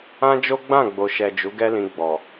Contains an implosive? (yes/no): no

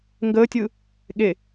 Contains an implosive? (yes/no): yes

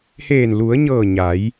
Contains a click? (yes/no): no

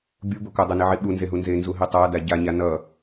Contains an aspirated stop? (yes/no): no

